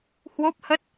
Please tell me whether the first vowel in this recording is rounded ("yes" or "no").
yes